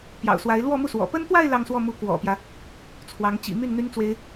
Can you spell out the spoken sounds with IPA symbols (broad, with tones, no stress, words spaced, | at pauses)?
pjɑ̰˨˩ʊ̯swa˧˥ɪ̯ lwɔ˥˧mu˥˩swɔ̰˨˩ pə˥nt̪wa˥˧ɪ̯ lɑ˥˧ŋswɔ˥˩mu˧˥ kwɔ̰˨˩pjä˦ | t͡sʰwɑ˧˥ŋ t͡ɕḭ˨˩my˥˩n n̪y˥nt͡swe˥ɪ̯